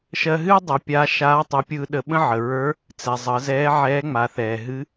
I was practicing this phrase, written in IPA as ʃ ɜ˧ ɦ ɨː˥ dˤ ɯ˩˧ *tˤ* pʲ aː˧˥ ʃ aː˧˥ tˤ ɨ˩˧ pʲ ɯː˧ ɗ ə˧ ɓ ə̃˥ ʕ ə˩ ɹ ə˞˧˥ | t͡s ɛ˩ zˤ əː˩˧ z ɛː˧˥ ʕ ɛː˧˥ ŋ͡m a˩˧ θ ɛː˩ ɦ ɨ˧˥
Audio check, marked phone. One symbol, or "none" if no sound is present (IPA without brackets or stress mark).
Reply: none